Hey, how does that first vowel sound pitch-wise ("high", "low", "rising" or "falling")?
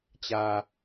low